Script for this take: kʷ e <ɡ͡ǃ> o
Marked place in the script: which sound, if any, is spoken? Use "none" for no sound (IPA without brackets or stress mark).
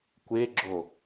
ɡ͡ǁ